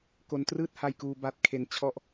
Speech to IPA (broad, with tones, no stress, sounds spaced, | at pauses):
k o˧ n t r ɯː˥˩ t̚ h a˧ j k uː˧ b a˦˥ t̚ kʰ e˧ n t͡ɕʰ ɔ˥˩ ʔ